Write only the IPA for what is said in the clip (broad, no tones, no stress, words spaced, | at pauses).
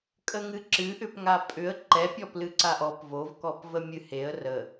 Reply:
kʼəŋɨǁɨʔʏp ŋapʼʏə̯ ǃɛpʲɔ plɨǀaʔɔp vovkɔpvə mʲɨheə̯ rə